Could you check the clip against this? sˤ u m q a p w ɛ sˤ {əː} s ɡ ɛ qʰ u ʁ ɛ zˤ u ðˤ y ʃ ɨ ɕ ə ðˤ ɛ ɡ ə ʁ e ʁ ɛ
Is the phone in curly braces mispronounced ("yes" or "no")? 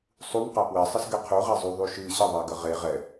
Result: yes